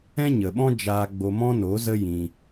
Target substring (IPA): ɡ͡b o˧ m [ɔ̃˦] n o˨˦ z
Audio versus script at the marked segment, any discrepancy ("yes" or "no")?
no